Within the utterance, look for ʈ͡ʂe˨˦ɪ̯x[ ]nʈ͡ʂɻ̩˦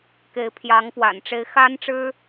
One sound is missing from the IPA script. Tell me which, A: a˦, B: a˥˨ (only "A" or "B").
A